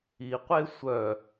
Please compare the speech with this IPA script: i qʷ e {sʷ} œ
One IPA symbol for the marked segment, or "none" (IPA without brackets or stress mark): sʷ